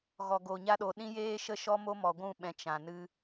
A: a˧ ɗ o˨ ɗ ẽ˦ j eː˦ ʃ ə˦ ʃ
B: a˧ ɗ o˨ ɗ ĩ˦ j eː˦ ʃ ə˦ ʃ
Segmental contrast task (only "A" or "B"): B